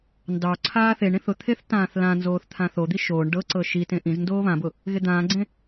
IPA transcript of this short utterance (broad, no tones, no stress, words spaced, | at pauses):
ndɑ ǀʰaːθeɳĩθ ʊt̪ʰeθ tãːθlãnzoːθ t̪ʰãθod̪i ʃoːɳ ɖɤǀɤ ʃitẽ ʔĩzndoː βãbʊ | ɣed̪ãːɡ͡ǀẽ